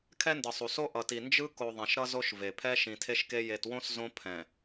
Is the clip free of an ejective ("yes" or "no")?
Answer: yes